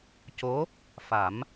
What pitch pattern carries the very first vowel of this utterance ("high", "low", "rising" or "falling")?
rising